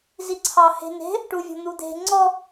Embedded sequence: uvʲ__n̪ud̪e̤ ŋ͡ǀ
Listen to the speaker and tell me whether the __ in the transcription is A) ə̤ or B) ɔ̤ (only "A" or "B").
B